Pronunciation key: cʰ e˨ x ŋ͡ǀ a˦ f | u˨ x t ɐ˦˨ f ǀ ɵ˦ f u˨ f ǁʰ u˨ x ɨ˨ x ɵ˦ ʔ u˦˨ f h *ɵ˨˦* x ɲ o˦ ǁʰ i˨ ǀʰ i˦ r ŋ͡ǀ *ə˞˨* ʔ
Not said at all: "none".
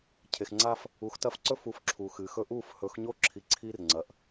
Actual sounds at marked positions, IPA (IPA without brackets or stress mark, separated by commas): ɵ˨˦, ɐ˨